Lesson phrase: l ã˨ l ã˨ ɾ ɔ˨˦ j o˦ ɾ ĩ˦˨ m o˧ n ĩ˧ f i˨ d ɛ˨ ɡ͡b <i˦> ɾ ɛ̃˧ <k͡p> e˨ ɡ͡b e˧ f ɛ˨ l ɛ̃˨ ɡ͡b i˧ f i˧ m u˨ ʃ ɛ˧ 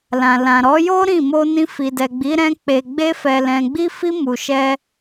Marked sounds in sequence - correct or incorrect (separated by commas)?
incorrect, correct